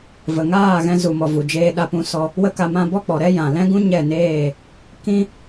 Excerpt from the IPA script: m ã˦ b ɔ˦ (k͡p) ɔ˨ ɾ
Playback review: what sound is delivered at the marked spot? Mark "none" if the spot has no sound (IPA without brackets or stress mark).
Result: k͡p